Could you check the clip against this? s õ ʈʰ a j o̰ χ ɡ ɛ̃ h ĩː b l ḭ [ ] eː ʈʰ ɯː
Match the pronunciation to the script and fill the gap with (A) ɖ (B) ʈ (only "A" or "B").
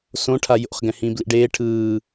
A